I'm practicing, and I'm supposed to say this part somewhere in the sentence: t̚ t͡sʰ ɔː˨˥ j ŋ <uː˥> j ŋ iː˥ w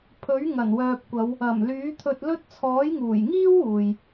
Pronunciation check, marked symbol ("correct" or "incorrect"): incorrect